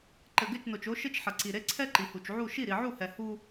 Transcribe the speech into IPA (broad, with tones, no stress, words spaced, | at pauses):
ǃɘ˨ɡɘ˦˨t͡ʃno˨t͡ʃ o˦ ʃɘ˦t͡ʃħɐ˨ǀi˨ɾe˦ ǀʰɛ˦ ǃi˨hu˨t͡ʃ ʕu˦˨ ʃi˦˨ɾi˨ʕu˦˨hɛ˨ hu˦